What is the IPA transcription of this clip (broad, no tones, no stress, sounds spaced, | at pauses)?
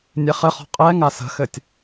nʲ e χ ɘ χ ɔ̤ qʼ ɛ ŋ a s ə̤ x ɘ tʲ